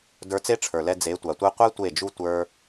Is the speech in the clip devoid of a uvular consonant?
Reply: no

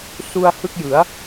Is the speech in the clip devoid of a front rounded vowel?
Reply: yes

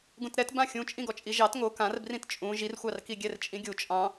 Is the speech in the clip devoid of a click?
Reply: yes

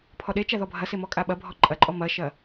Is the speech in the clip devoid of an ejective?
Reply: no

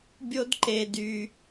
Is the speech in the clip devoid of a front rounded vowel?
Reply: no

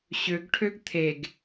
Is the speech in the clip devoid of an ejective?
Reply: yes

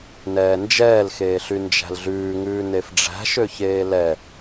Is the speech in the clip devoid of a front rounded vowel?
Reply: no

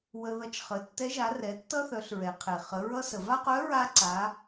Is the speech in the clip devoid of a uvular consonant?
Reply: no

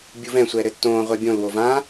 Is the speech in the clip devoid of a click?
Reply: yes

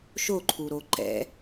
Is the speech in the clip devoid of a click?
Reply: no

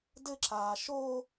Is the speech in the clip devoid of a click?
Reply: no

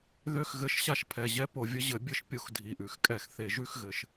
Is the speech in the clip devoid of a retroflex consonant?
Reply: yes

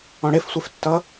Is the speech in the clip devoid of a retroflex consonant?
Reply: no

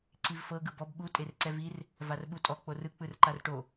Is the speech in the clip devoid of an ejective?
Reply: no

